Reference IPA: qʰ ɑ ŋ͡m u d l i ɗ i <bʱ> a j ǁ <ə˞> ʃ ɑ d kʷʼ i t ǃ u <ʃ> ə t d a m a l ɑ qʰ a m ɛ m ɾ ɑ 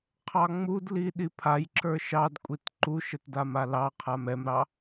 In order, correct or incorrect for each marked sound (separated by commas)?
incorrect, correct, correct